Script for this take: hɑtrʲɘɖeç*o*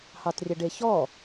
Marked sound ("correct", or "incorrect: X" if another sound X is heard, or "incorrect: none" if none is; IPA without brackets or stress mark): incorrect: ɔ